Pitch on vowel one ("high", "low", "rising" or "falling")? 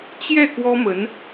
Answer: falling